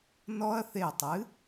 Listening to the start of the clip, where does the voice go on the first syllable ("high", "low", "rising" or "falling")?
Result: high